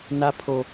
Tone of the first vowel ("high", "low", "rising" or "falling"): high